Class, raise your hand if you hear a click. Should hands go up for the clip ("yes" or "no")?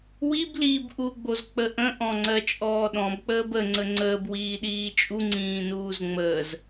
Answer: yes